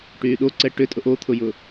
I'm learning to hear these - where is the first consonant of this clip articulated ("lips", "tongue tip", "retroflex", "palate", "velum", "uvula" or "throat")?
retroflex